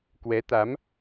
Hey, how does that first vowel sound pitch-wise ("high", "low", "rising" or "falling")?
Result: rising